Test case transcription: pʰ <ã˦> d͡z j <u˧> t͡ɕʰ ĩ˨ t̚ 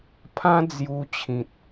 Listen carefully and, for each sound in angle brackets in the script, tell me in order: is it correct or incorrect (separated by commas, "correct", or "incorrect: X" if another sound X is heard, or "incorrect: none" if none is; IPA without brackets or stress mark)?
correct, correct